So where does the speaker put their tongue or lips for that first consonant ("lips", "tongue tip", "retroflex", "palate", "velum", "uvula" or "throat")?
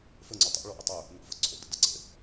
lips